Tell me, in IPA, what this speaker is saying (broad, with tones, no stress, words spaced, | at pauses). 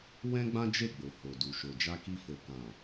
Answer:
wɛ̃˦ɡ͡bã˦d͡ʒe˦˨ɡ͡bo˨ ho˨du˨ʃo˨ d͡ʒa˧ki˧fo˨kã˨